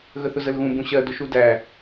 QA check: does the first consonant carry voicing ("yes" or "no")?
yes